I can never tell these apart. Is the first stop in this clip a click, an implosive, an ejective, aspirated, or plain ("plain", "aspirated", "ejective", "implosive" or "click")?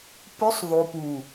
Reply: plain